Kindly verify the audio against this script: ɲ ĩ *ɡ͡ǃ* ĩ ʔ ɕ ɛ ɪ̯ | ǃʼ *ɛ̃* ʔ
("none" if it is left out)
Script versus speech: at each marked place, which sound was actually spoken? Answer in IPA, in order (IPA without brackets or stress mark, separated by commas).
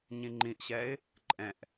ŋ͡ǃ, ɛ̃